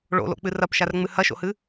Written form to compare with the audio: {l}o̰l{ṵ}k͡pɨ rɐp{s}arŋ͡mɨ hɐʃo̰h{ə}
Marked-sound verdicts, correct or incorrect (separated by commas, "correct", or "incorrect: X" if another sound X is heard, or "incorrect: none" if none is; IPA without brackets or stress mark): incorrect: ɭ, incorrect: o̰, incorrect: ʃ, incorrect: ɨ